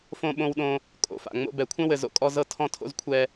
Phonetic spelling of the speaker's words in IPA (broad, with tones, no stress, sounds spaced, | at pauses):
f õ˦ ɓ õ˦ w ɗ õ˦ | kʼ o̰˨ f a̰˨ ŋ͡m o̰˦ b ɛ˨ kʷʰ ɛ̃˦ w ɘ˨ z o̰˦ kʼ ɔ˦ z ɤ˦ tʰ ɔ̃˦ tʰ o̰˦ z kʷʰ ɛ˦